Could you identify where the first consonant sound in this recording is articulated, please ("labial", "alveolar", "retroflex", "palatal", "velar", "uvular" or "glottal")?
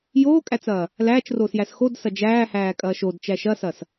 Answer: palatal